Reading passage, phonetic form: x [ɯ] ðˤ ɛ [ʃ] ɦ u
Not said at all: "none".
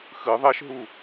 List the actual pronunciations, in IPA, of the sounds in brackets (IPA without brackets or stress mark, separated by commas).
ɯ, ʃ